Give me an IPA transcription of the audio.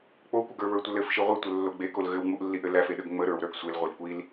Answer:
k͡p o kʷ ə ɡ ə˞ β ə˞ tʷ ə l ɘ f ʃ i ʁʷ i tʷ ə lː o ɡ͡b e k o l ɣ ɘ w ŋ͡m u ʔ lː i ʔ ɘ l æ f e ɗ ə ɡ ŋ͡m ə ɾ ə˞ w ɾ ə˞ ɡ sʷ e l ʁʷ e l kʷ i l

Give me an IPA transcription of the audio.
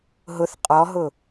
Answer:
ɦ ʊ θ qʼ ɔ ɦ ʊ

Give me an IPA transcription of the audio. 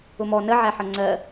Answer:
ʊ m ɔ n ə ʕ æ ħ ʌ ŋ͡ǀ ɜ

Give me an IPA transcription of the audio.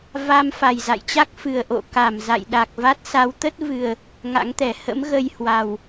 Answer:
v a˧ m f a˨˩ j z a̰˧˨ j t͡ɕ a˦˥ k̚ f ɨ˨˩ ə̯ ʔ o̰˧˨ k a˧˩ m z a̰˧˨ j ɗ a˨˩ k̚ v a˦˥ t̚ s a˨˦ w t̪ ə˦˥ t̚ v ɨ˨˩ ə̯ | ŋ a̰˧˥ ŋ t̪ ɛ˧˩ h ə̰˧˥ m ɣ ə˧ j h w a˨˩ w

